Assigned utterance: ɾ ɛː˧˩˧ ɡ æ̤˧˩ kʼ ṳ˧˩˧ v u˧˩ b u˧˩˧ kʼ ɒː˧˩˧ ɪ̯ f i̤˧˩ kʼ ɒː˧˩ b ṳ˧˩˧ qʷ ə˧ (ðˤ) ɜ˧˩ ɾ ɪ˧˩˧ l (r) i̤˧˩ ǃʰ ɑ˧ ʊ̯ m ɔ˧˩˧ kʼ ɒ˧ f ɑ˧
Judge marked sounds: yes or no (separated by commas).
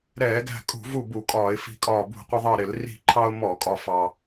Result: yes, yes